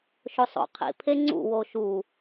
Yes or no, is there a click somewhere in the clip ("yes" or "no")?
yes